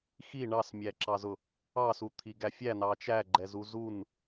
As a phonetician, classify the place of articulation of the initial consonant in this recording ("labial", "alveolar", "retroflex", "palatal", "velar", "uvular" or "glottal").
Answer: velar